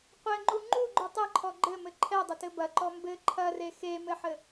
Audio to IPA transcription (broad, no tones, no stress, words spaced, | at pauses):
qʷɘŋ͡ǃu ŋ͡ǃuɡ͡ǃu tˤɘǃʰɔ ɡ͡ǃɘmɘ ǃʰɛdˤɘtɘ bɐǃɔ mbɘ ǃʰɐre xemɘħɘ